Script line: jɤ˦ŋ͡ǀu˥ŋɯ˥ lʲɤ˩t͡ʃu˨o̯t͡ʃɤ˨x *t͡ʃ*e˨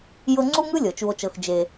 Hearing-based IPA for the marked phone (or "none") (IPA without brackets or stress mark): d͡ʒ